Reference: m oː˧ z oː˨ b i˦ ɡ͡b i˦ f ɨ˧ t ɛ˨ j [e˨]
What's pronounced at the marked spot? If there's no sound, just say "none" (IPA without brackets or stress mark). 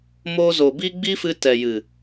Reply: ɨ˨